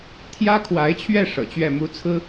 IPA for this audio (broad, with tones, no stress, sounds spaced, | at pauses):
t̪ʰ j ä˥ kʰ w a˧˥ ɪ̯ t͡ɕʰ ɥ ɛ˥˩ ʂ ɤ̰˨˩ t͡ɕ ɥ ɛ˥˩ m u˥ t͡sʰ ɹ̩˥